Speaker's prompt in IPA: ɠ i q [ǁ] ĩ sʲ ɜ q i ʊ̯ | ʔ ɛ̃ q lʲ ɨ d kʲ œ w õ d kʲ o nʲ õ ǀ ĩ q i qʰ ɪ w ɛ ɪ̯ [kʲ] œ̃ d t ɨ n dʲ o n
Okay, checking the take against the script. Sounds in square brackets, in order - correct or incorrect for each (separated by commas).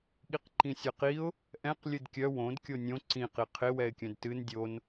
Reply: incorrect, correct